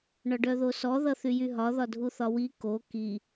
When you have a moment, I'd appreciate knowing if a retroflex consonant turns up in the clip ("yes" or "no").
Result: yes